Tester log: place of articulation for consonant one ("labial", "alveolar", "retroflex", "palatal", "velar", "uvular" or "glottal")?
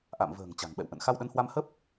glottal